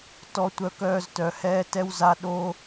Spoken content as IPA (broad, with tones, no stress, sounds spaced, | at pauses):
t ɔ˧ tʷ œ˧ k œː˧ z t œ˨ h ɛː˧ t ɛ˧ w z a˨˦ ɗ o˧